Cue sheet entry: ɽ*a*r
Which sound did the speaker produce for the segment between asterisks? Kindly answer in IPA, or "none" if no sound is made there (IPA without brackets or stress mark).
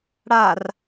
a